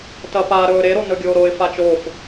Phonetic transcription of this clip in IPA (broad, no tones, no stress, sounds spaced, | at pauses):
t ɐ p a ɾ ɵː ɾ e ɾ o n ɵ ɡʲ oː ɾ o ɪ̯ f a t͡ʃ o f